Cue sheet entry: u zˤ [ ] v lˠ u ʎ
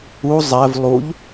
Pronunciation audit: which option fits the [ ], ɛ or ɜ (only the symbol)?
ɛ